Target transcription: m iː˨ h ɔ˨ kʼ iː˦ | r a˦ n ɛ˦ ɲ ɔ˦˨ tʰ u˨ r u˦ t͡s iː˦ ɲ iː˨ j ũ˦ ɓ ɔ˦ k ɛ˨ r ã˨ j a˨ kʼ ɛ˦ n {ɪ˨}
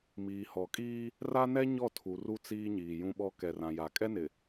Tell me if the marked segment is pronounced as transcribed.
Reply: yes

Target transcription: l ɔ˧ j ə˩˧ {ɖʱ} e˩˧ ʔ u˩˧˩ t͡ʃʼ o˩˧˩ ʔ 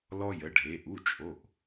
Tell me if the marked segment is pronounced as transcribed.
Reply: yes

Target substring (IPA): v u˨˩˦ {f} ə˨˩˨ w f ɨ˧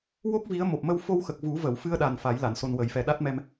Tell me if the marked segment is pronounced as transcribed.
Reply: no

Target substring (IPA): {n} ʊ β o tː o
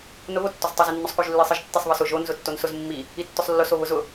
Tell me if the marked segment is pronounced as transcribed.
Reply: yes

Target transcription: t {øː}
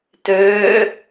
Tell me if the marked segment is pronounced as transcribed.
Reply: yes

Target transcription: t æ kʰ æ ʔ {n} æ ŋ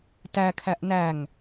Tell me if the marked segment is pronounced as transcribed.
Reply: yes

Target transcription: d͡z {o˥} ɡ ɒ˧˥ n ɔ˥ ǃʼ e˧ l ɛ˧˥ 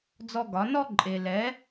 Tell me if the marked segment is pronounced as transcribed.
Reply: no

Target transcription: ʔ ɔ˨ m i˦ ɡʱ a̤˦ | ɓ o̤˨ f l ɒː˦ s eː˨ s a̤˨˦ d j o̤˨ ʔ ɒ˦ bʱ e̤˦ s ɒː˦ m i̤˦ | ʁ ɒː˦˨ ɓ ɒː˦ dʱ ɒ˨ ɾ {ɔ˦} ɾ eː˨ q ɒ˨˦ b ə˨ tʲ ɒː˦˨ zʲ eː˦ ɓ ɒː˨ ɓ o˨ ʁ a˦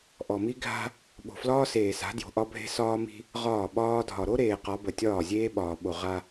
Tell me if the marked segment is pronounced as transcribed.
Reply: no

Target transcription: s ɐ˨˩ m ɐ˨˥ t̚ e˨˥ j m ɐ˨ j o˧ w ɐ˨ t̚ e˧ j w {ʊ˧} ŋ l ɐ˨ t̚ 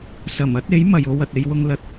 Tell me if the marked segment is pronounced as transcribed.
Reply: yes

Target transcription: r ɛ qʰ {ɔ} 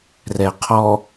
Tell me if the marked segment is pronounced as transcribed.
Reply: yes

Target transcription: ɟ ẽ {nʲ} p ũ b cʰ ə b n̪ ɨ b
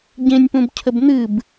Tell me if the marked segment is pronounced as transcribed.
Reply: yes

